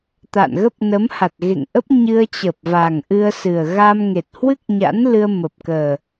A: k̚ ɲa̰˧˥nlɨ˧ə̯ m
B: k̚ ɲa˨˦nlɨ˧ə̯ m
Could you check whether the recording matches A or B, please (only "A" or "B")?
A